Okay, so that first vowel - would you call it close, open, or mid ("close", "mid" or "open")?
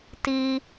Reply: close